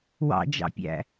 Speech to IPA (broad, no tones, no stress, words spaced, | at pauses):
wɑ̰d͡ʒɑ̰pʲæ̰